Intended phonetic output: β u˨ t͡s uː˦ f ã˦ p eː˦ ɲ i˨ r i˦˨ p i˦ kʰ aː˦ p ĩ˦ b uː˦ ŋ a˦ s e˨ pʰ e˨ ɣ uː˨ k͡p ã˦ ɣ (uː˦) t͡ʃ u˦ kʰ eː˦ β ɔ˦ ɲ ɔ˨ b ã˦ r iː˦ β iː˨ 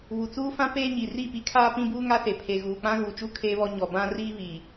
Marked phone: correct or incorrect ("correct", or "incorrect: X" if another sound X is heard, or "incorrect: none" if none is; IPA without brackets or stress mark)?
incorrect: uː˨